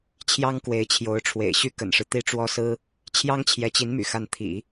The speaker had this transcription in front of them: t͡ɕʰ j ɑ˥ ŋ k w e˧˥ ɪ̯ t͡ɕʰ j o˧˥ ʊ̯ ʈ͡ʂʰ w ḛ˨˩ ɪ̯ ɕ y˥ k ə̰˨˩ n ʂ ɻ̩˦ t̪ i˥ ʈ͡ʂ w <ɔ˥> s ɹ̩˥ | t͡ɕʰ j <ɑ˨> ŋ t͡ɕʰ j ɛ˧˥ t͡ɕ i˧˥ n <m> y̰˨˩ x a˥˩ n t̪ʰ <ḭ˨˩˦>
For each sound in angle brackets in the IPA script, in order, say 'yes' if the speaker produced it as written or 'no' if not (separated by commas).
yes, no, yes, yes